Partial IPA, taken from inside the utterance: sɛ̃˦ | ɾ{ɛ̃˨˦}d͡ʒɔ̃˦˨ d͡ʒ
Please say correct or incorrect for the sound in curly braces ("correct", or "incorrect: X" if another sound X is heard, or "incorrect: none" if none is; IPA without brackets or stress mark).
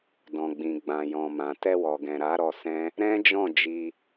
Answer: incorrect: ɛ̃˦